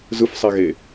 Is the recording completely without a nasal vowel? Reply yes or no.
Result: yes